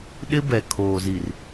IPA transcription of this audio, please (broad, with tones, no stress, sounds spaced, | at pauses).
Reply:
ɗ ɪ˦ b ɛ˨ kʰ oː˨ z i˨ r